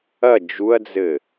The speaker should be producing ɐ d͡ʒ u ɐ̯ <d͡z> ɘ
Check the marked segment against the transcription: correct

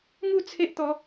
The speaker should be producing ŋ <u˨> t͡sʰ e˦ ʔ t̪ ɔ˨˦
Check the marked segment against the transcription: incorrect: u˥˧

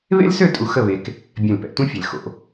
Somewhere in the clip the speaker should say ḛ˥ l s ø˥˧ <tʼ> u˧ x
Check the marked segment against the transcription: correct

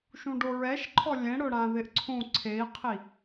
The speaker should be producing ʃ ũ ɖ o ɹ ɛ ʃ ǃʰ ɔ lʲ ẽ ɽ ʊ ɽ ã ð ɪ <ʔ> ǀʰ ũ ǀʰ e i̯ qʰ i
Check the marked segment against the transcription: correct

